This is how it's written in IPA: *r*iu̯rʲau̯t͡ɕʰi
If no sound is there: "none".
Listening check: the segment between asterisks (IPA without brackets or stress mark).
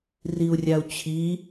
r